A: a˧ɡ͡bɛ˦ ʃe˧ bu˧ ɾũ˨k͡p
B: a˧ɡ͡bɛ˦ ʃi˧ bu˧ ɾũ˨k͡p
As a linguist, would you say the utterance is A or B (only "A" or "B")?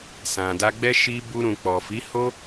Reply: B